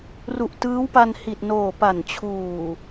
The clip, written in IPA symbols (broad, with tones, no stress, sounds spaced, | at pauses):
r u˨˩ ʔ t ɯː˦˥ w p a˧ n h i˨˩ t̚ n oː˨˩ p a˨˩ n t͡ɕʰ uː˨˩